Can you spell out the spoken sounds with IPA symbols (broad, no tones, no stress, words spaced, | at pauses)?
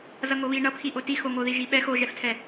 zʌŋoβi ɳʌpʰi ʔotixoŋo ðiʒiɓɛx oʒɛftʰɛ